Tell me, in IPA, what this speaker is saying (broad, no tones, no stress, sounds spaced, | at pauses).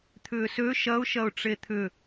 t̪ʰ ʏː s ø ʃ ɐ ʊ̯ ʃ ɐ ʊ̯ ʈ͡ʂ e t̪ʰ ʏ